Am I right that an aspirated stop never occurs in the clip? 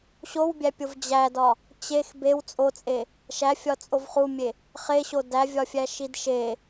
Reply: yes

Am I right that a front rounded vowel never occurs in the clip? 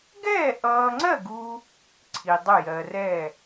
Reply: yes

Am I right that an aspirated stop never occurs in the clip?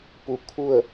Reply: no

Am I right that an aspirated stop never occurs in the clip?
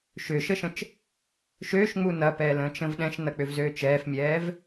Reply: yes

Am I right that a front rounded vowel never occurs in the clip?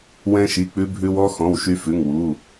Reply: no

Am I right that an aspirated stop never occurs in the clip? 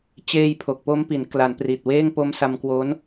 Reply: no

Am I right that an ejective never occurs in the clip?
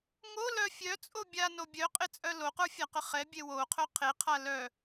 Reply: no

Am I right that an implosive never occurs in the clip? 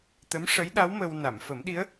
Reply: no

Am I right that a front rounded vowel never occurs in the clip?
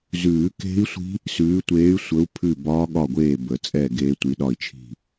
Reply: no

